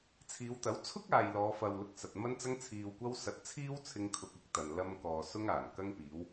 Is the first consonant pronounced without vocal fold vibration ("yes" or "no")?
yes